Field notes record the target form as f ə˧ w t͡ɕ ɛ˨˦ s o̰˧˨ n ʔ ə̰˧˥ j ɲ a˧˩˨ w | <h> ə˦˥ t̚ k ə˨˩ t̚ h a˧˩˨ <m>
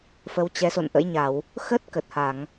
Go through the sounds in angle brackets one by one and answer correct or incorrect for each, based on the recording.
incorrect, incorrect

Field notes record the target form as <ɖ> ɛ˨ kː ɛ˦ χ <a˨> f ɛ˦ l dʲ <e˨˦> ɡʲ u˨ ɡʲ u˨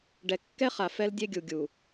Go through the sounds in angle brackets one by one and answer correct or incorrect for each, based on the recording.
correct, correct, incorrect

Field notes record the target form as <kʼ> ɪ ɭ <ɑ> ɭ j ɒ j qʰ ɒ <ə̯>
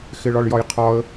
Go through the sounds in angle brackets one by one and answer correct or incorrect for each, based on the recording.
incorrect, incorrect, correct

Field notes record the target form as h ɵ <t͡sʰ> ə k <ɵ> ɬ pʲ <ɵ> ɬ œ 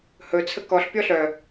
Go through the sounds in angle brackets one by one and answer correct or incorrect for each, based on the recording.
correct, incorrect, incorrect

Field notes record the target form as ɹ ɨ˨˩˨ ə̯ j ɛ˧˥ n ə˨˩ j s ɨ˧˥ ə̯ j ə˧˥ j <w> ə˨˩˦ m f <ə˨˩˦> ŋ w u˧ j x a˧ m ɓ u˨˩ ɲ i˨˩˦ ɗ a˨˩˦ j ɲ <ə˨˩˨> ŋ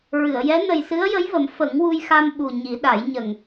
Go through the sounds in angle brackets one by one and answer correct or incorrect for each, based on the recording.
incorrect, correct, incorrect

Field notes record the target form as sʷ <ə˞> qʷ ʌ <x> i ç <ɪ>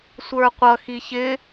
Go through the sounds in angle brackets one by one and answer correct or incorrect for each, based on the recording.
correct, correct, correct

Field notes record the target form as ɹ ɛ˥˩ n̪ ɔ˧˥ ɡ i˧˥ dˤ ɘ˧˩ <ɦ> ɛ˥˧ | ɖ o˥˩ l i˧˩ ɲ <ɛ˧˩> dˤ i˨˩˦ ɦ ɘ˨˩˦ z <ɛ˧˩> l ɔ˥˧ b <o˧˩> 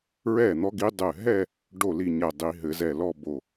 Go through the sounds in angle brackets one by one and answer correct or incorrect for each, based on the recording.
correct, correct, correct, correct

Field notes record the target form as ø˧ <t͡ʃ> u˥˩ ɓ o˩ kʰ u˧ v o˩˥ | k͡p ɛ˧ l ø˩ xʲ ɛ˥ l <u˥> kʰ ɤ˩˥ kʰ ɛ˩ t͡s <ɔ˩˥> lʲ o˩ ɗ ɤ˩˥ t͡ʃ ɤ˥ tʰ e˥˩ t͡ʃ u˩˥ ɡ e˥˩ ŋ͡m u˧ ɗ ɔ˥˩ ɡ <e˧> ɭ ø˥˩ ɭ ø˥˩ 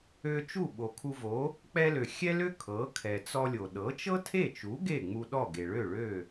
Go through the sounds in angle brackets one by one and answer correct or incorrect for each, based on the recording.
correct, incorrect, incorrect, incorrect

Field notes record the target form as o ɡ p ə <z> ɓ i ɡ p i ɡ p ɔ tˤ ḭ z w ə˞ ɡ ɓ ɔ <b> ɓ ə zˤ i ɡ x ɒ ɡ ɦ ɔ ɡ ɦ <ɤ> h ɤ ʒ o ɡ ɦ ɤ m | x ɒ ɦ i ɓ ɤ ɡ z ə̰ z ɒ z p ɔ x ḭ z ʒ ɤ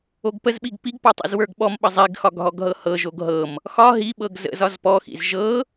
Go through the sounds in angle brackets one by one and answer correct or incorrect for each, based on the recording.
correct, incorrect, correct

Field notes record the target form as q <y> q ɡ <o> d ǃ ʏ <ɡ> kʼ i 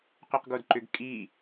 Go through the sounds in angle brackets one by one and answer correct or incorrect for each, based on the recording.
correct, correct, correct

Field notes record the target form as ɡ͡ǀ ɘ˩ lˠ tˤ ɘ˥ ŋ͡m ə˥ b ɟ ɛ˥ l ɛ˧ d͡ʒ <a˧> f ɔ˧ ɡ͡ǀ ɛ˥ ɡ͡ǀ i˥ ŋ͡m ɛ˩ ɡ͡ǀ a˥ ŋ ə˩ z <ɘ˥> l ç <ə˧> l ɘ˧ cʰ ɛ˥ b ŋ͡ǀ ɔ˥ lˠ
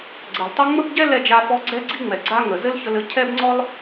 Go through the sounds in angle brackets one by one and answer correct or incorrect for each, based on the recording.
correct, correct, correct

